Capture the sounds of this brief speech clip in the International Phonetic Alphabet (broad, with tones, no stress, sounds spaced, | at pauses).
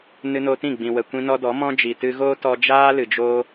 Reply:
n ɨ˧ n o˧ t ĩ˦˨ ɡ͡b ĩ˨ w ə˨ kʷ ĩ˧ n ɔ˧ d ɔ˨˦ m ɔ̃˦ d͡ʒ i˨ t ɨ˧ ɣ oː˦ t ɔ˧ d͡ʒ aː˦ l ɨ˨ d͡ʒ oː˦